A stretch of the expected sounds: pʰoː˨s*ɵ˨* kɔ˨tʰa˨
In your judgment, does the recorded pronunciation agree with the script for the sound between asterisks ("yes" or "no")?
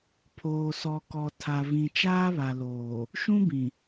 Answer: no